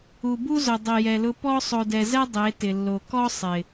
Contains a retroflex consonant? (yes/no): no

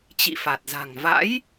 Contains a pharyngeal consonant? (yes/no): no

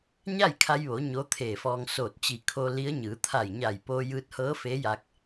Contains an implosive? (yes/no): no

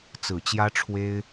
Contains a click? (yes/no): no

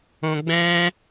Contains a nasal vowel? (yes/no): yes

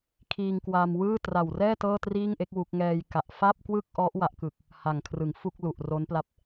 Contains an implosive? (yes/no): no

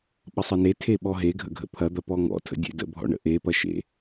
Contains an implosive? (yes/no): yes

